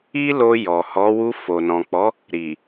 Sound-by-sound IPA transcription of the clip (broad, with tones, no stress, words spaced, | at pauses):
i˦lo˧ jɔ˨hɔ˨˦ wu˧fo˨nɔ̃˨k͡pɔ˨˦ | ɾi˨